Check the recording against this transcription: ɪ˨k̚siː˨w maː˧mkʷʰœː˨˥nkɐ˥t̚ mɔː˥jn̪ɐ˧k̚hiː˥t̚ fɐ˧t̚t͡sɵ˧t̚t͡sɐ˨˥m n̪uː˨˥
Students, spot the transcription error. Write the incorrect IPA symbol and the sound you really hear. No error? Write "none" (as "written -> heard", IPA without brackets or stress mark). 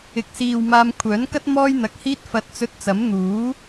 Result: none